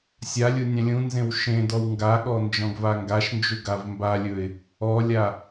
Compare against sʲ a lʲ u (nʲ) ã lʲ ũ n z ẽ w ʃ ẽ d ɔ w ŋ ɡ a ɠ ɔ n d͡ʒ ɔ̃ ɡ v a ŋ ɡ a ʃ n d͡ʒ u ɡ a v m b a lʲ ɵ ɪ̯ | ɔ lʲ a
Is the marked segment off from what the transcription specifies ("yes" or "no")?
no